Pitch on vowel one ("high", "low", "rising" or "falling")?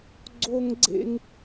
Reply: high